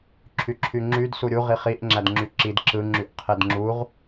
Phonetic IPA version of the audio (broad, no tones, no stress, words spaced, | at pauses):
ǁʰyǁʰyŋ͡ǁyd suɾʲu ʁiχiʔ ŋ͡ǁædŋ͡ǁyǁid ǁɯ ŋ͡ǁyʔqʰedŋ͡ǁuʁ